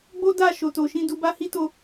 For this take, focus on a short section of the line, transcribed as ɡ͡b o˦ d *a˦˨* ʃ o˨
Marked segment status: correct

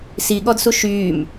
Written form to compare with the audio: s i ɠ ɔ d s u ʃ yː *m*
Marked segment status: correct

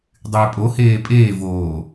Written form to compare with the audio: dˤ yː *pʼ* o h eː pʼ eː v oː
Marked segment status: correct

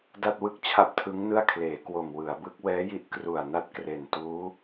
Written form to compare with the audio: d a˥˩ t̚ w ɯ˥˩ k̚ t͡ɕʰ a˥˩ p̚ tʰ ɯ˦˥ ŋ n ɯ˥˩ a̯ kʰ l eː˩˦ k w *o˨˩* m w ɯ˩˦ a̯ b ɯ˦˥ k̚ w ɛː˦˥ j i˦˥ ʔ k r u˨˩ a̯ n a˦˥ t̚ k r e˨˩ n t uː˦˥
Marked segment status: correct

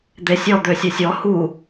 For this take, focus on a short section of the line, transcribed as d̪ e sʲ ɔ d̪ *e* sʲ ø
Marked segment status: incorrect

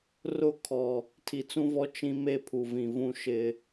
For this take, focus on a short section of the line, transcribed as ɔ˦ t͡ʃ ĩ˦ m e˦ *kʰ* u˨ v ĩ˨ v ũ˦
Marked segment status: incorrect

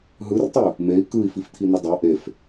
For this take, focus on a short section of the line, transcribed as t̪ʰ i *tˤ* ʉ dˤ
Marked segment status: incorrect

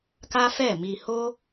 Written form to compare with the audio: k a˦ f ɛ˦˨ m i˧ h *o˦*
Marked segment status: correct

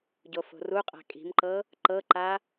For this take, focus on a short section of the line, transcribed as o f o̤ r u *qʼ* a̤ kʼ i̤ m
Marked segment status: correct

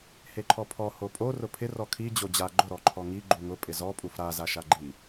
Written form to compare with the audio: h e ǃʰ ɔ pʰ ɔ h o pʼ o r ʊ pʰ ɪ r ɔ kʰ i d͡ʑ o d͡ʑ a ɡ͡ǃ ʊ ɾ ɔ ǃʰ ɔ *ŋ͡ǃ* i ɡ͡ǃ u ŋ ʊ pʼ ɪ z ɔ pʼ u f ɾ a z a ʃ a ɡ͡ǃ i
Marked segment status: incorrect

